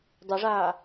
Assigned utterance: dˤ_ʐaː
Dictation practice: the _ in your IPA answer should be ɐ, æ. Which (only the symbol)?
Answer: ɐ